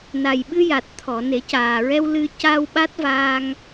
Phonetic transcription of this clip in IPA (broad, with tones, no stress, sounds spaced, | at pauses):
n a˨˩ j ɓ ɨ˧ j a˨˩ t̚ t̪ʰ ɔ˨˩˨ n e˨˩˦ c aː˨˩ ɹ ɛ˧ w l ɨ˧ c a˧ w ɓ a˦˥ t̚ v aː˧ ŋ